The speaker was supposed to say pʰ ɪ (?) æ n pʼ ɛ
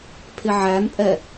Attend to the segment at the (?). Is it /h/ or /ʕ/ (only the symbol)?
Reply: ʕ